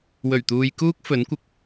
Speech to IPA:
w ɵ˨˩ ɥ t̪ uː˨ j k uː˥ k̚ f ɵ˨˥ n kʷ ɪ˧ k̚

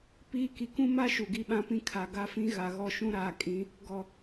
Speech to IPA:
p iː˦ k i˨ k ũ˦ m a˦ ʃ u˨ ɡ i˦ ɓ ã˦ p ĩ˦ kʰ a˨ ɡ a˦ f ĩ˦ ɣ a˨ ɣ ɔ˦˨ ʃ ũ˦ ɾ aː˨ kʼ ĩ˨˦ | ɡ ɔ˨

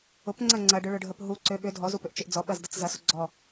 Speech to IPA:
ʊ p ŋ͡ǀ ɐ ŋ͡ǀ ɐ ɖ ʏ ɭ ʊ ɖʱ ə p ɦ u ǀ ø ɓ ʏ dʱ ɔ z u p ʏ ʔ t͡ʃ ʏ ʔ d͡z ɔ ɓ ɐ z d ɐ t͡s z ɐ s ʊ ɡ͡ǀ ɔ

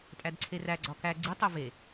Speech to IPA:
tʼ æ d ǀʰ e r æ ɡ͡ǀ ɒ k æ ɡ͡ǀ i tˤ o v e

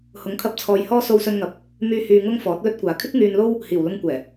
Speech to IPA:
h ʊ˨˥ ŋ kʰ ɐ˧ p̚ t͡sʰ ɔː˧ j h ɔː˥ s o˧ w s ɵ˧ n ŋ ɐ˨˥ p̚ | m yː˧ h yː˧ ŋ ʊ˥ ŋ f ɔː˨˥ t̚ l ɵ˥ t̚ kʷ aː˨ kʰ ɪ˥ k̚ ŋ yː˧ n l o˥ w | h iː˨˩ w l ʊ˧ ŋ kʷ ɛː˨˩

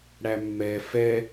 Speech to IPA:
ɽ æ mː ɛ f ɛ

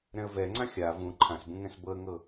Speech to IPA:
ɾ ɛ̃ ə̯ v ɛ ŋ͡ǀ ã xʲ a v ũ ǃʰ ã s b ũ ŋ ɛ̃ s b ɤ ə̯ ŋ ɤ

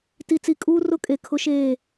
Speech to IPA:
t i˨ t͡s i˨ kʼ uː˦ r ʊ˦ kʼ e˨ kʰ ʊ˦ ʃ eː˦˨

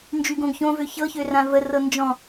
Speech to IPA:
n d͡ʒ y ɡ õ ɡ ç õ v ø ç ɤ ç ø r ã v ə r ɤ n d͡ʒ ɔ̃

